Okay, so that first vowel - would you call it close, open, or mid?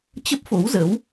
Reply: mid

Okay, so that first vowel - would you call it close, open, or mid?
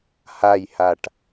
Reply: open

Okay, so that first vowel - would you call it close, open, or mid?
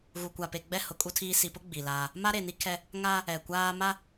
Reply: close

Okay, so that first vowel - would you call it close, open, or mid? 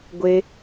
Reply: mid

